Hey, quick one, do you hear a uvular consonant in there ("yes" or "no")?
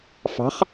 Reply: yes